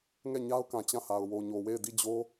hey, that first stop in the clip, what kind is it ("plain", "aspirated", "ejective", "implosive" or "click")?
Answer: plain